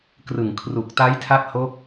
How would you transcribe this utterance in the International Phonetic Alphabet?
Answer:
krɯ˨˩ŋ kʰru˨˩k̚ta˦˥jtʰa˦˥t̚ho˦˥k̚

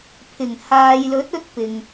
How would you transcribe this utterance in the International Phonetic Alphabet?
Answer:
pʰɪ˨˩ŋhaː˨jlɵ˨˥t̚ɵ˧t̚ pɪ˨ŋ

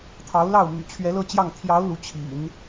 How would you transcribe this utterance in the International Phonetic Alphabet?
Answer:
t̪ʰɑ˧˥ʊ̯lɑ˥˩ʊ̯ my̰˨˩ t͡ɕʰɥɛ˧˥lɤ˥˧t͡ɕjɑ˥˩ŋ t̪ʰjɑ˧˥ʊ̯ lu˧˥ t͡ɕʰḭ˨˩˦n

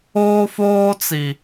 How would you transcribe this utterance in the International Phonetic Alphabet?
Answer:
oː˦foː˦t͡si˨

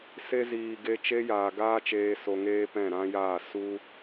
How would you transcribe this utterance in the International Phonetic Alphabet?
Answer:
se˧ziː˨ ɡe˧t͡ʃe˦ jaː˨ɡaː˦t͡ʃeː˧ so˧ŋeː˦pɛ̃˦˨ ɾã˦jaː˦˨ su˦

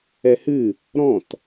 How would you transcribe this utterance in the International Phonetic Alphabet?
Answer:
ɛhɨ | ɾɔ̃t

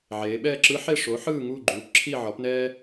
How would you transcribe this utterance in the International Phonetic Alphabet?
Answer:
ʕeː˩˧ɓɛː˦˨ǁɯ˧˥ ħe˦˨ʂo˩˥ħɯː˦˨ ŋuː˦˨ɡ͡ǃuː˩˥pǁʰi˦˨ ʕɔ˩˥pnɛː˥

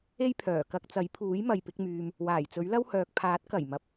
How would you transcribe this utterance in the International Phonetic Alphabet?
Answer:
e˥jpʰœː˨˩ kɐ˧k̚t͡sɐ˨˥jpʰuː˨˥j mɐ˨jpɪ˨˥k̚myː˨m | waː˨˩jt͡sɵ˨˥ɥlɐ˥whœː˨k̚ pʰaː˨˥t̚ kɐ˨˩j mɐ˨˥p̚

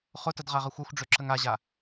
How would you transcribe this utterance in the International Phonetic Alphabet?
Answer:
χʊtəd ʁaʁəxʷɛxʷɖ͡ʐø ǁəŋaʑa

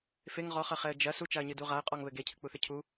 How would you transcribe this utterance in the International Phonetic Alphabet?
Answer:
feŋ ʁɔχɐχɛə̯ d͡ʒɐ sut͡ʃaə̯ɲɨdu ʁaə̯qʼɔŋβɘ ɡecʰɨk͡puθɨ cʰu

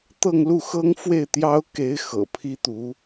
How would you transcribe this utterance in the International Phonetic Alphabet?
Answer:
t̪ɤ˥˧ŋlu˥˩xɤ˥ŋ fwe˥˩ɪ̯t̪jɑ˥ʊ̯ke˧˥ɪ̯ xɤ̰˨˩pʰi˥t̪u˧˥

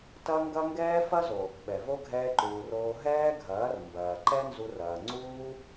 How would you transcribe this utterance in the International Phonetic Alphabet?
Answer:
tɐ˦ŋɡɐ˦ ŋɡɛː˦fɐ˦zo˨ | ɓɛ˨vo˦ ɡʱɛː˧ǃuː˨roː˧ ɦɛː˦ɡʱɐː˨˦r mbɐː˨ǃɛ˦nzu˧rɐː˨ ŋ͡ǀuː˦

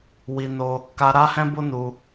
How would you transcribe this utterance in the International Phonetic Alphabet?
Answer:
wi˧no˦ | ka˧ɾa˦hɛ̃˦bo˦ nu˧

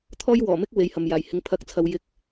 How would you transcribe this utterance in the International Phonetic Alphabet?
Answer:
t̪ʰɔː˥jwɔː˨˩mɪ˥k̚ we˨˥jhɐ˨m jaː˨˩jhɪ˨˧ŋ pʰɐ˨˥k̚t͡sʰɐ˨w jɪ˧k̚

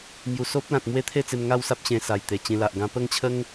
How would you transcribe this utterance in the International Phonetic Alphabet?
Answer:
mju˨˩so˦p̚lã˨t̚mwe˦ t̪ʰe˥˧t͡se˧mŋa˥˧wsa˦p̚ ɕẽ˧sa˨˩j t̪e˨˩t͡ɕĩ˧la˨ʔ ɡã˧pə˥˧ŋt͡ɕʰə˦ŋ

